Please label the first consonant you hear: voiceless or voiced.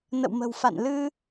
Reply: voiced